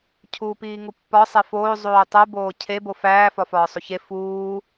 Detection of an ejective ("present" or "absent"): absent